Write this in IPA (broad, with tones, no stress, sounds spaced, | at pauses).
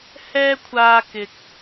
h ɛː˧ kʷʰ aː˨ k ɪ˨ k̚